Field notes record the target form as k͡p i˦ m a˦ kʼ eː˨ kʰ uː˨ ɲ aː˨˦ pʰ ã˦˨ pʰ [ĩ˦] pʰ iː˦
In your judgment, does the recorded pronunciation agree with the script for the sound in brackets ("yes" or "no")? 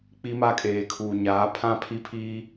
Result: no